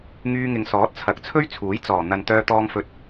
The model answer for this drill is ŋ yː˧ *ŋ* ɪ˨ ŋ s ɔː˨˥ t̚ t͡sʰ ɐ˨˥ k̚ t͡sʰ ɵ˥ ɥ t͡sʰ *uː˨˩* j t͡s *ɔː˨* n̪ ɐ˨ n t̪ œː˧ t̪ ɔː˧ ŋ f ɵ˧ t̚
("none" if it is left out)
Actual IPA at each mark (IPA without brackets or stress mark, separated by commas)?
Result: ŋ, uː˨˥, ɔː˨˩